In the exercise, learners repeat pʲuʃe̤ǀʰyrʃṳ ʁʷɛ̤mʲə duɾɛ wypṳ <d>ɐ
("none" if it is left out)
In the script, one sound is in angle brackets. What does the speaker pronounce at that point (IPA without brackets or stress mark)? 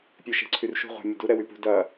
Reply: d